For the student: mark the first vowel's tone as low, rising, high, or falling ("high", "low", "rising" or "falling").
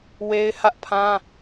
high